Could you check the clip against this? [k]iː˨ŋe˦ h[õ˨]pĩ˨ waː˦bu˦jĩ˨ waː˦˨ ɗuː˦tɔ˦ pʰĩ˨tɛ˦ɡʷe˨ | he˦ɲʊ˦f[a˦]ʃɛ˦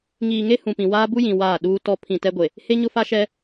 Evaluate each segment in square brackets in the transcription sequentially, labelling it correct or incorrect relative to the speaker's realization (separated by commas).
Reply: incorrect, incorrect, correct